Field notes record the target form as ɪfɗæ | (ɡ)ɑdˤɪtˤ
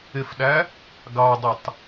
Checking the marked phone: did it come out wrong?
no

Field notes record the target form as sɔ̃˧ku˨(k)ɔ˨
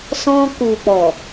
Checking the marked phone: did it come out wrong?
yes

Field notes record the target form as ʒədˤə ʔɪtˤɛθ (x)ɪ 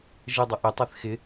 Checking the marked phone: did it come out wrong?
no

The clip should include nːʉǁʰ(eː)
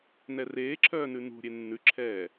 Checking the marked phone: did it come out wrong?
yes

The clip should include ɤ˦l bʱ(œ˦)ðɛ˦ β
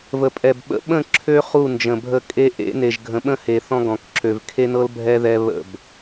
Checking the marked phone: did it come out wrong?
yes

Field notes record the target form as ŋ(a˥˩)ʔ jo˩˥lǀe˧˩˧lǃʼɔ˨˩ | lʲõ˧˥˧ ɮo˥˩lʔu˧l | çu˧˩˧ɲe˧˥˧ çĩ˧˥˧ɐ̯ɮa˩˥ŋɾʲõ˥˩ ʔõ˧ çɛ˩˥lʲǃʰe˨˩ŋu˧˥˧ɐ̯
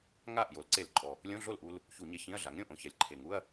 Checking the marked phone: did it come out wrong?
no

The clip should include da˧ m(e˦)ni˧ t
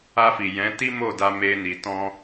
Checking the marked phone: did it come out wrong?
no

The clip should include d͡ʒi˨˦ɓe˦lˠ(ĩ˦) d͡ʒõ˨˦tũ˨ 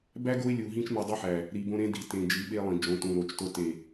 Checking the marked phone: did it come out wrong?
yes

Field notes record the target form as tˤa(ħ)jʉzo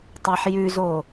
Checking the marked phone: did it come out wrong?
no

